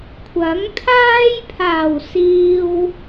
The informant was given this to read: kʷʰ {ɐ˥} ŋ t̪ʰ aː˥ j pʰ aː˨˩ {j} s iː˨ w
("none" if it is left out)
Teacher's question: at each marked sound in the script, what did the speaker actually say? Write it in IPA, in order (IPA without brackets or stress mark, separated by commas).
ɐ˨˥, w